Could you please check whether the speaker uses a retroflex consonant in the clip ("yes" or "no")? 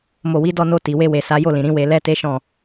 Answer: no